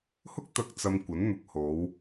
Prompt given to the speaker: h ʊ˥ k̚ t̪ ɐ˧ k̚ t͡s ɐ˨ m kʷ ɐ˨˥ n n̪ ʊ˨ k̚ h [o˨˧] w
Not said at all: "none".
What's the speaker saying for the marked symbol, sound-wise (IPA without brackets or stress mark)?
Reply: o˨˧